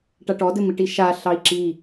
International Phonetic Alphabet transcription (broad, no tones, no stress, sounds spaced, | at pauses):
ʈ a ʈ ɔ d ɘ m i ʈ i ʃ a ɬ ɑ i̯ ǁ i